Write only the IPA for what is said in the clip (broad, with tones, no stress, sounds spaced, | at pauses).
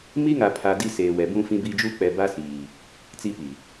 m i˦ ŋ a˨ pʰ a˨ d i˦ s eː˨ w ɛ˨ b ũ˦ f ĩ˦ b iː˦ d͡ʒ u˦ k͡p ɛ˨ b a˦ s iː˨ | t͡s i˦ p i˨